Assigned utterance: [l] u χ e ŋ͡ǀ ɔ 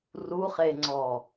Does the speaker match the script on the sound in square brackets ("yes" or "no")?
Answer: no